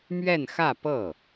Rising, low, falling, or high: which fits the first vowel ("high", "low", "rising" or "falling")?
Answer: falling